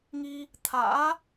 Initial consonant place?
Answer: velar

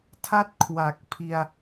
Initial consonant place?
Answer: alveolar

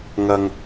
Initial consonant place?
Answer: velar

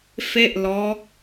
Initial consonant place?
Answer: labial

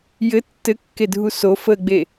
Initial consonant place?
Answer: palatal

